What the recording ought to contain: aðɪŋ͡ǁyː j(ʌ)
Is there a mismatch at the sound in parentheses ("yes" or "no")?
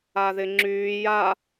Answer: yes